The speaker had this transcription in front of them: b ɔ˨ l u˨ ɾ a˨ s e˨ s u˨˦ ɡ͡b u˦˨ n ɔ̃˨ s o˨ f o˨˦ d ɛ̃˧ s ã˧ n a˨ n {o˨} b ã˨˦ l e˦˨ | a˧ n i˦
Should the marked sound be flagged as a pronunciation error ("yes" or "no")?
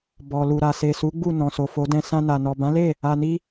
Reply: yes